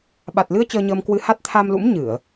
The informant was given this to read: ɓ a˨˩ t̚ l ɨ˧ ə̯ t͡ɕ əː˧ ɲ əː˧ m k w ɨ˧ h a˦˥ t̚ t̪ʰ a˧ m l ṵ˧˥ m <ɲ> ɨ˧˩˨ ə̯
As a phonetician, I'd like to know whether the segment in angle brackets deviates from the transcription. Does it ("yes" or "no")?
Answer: no